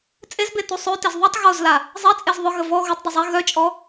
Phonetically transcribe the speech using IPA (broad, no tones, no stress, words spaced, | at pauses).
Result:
t͡sʼezbe tusˤøtez ðˤutˤ ɣozla | zˤet͡sʼez ðˤœɣə vɔ ɣutˤdˤu zˤe ɣœt͡ʃʼɔ